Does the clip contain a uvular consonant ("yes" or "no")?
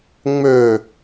no